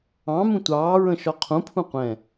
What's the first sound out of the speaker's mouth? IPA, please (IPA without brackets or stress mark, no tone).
ɑ̃